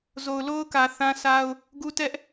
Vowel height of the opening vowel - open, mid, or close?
mid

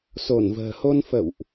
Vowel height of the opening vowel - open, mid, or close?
mid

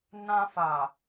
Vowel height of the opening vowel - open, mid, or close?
open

